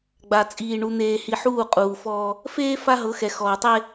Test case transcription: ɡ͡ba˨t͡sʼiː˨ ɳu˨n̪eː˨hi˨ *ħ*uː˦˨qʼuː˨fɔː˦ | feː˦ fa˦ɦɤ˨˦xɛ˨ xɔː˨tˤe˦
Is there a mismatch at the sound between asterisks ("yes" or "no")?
no